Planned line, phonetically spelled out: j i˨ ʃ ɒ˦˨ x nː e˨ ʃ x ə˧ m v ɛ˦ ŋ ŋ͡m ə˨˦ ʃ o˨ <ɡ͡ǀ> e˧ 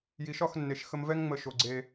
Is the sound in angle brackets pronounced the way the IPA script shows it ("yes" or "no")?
yes